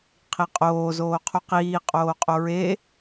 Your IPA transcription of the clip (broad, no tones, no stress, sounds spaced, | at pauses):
qʰ i qʼ oː z oː qʰ u q iː qʼ oː qʼ o ɹ e